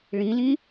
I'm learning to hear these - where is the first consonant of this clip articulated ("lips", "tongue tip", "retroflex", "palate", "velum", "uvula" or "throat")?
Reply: retroflex